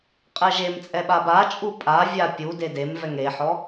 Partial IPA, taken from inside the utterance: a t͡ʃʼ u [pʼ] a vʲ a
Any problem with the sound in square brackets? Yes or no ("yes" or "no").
no